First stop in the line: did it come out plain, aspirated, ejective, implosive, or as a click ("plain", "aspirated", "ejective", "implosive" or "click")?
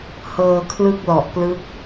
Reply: aspirated